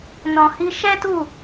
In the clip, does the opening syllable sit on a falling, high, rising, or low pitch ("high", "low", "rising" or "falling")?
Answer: low